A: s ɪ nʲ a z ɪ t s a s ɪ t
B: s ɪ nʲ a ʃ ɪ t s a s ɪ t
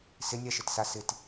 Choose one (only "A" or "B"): B